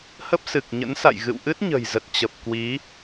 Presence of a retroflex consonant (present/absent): absent